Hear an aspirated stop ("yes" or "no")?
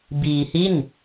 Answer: no